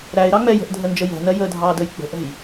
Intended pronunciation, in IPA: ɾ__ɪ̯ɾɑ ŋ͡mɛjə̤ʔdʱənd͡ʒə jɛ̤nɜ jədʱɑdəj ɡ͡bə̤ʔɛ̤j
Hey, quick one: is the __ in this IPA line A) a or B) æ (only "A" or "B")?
B